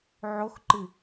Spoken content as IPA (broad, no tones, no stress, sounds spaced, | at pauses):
ʕ o x ǃ ɨ